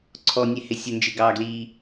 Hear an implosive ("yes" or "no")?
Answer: no